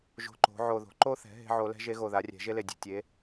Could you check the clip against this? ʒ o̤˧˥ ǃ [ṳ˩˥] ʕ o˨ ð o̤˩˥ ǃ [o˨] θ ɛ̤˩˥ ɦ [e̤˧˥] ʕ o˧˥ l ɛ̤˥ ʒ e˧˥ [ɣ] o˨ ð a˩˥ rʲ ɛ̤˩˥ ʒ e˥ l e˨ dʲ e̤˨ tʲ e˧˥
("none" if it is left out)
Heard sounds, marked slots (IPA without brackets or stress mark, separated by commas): o̤˩˥, o˥, e̤˥, ɣ